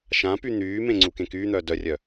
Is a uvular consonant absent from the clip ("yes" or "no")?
yes